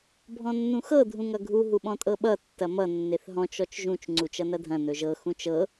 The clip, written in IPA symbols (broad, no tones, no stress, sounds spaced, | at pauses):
bʱ ɔ̃ nː ũ x ɤ dʱ ũ ŋ ʌ ɡʱ u ɦ u ɓ ɔ̃ tʼ ɤ ɓ ʌ tː ɐ m ʌ nː e θ ɦ ɔ̃ t͡ʃ ɔ t͡ʃ ʒ ũ t͡ʃ ŋ͡ǀ u t͡ʃ ʌ n ɐ dʱ ɐ̃ n ɵ ʒ ɤ x ũ t͡ʃ ɤ